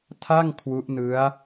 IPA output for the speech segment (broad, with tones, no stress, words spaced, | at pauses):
tʰa˥˩ŋ kʰwu˦˥ʔ nɯ˦˥a̯